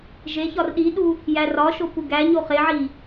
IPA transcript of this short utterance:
ʒe çɒrɗiɗu | jærɒʃo puɡæɲo χeʕi

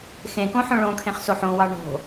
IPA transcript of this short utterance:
xẽkõ ħõɭõkʰẽχ soħõwɑ ɳo̤

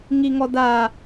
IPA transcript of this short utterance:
ŋiŋɔda

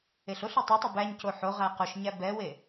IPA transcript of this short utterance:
eɬoɬe tˤotˤo bæɲco ħo ʁæqoʃɲæ bɛwe

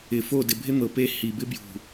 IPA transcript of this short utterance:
ɪ˨fo˦˨ dɪ˨bʱɪ˦n̪ɤ˨ pe˦ hi˨bɪ˦bjṳ˨

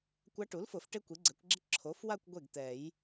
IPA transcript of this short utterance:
kʷa˧˥ʈu˩˥lfʊ˨˩˦f ʈe˥kʷi˩˥ɡ͡ǀɛ˩˥kʷɡ͡ǁɪ˥ ǁʰo˩˥fwa˥˧kʷ ɡʷe˥˩ɡt̪ɛ˨˩˦j

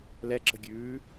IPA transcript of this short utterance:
lɛǁə̤ɡʲʉː

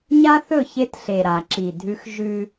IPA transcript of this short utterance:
ɲa˦θɵ˦˨çe˦tɬe˨ ɾa˨ǁi˨ dʱʉ˦x ʒʉ˦

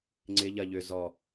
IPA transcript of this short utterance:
ŋ͡ǀɪ ʎɐ ʎʏ zɔ

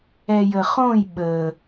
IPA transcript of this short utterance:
ɛjəχõj ɓə

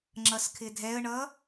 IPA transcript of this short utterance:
ŋ͡ǁʌskʰɪdʱɛə̯ɳʌ

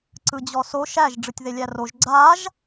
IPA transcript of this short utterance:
ǀɯd͡ʑɔso ʃæʒ ɖ͡ʐɯtʲðelʲæroʒ ɡ͡ǀaʒ

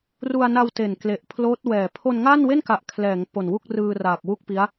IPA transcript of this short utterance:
ru˧a̯na˧w te˨˩nkle˨˩ʔpʰloː˦˥t̚wɛː˨˩ pʰo˧nŋa˥˩nwe˥˩nka˨˩ʔ kʰlɛː˩˦ŋpo˨˩nwu˥˩k̚ rɯː˧ raː˨˩k̚wu˥˩k̚pi˦˥a̯

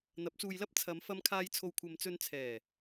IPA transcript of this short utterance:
n̪ɐ˨˥p̚t͡suː˧jlɐ˥p̚ t͡sʰɐ˨˧mfɐ˧mkʰaː˧j t͡sʰo˨wkʷʰɐ˨mt͡sɵ˧n t͡sʰɛː˨˩

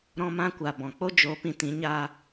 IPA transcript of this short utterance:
ɾɔ̃˧mã˧kʷa˨ bɔ̃˨k͡po˦ d͡ʒo˨˦pĩ˨ tĩ˨˦ɲa˧

